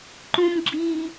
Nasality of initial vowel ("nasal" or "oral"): nasal